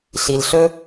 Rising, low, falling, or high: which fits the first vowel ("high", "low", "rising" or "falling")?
low